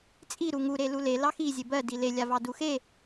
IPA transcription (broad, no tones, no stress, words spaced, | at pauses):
t͡sʼi ɾuŋu ɾelule lɑxi zʲebɜ dile lʲavɑduxe